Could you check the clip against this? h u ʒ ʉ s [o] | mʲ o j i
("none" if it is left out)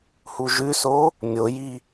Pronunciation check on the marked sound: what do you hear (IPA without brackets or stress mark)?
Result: o